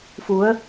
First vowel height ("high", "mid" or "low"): high